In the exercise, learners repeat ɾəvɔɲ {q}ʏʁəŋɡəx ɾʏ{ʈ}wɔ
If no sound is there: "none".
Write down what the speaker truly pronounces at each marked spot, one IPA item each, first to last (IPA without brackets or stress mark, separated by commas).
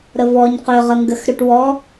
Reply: q, ʈ